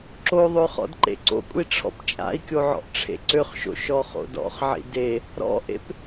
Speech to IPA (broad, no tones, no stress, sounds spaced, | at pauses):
ǁ o ðˤ ø χ ɔ̰ d ǃ ḛ ǀ o̰ kʷʼ i ʈ͡ʂʰ ɔ̰ p t͡ʃʼ a̰ i̯ kʲ o ʕ ɔ̰ ʔ ʈ͡ʂʰ ḛ ǀ ø χ ʃ o̰ ʃ ɔ χ o̰ d ɔ̰ χ ʕ ḭ d e | ɾ ɔ̰ ʔ ḛ p